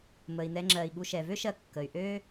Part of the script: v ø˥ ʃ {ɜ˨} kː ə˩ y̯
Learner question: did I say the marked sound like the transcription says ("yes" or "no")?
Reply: yes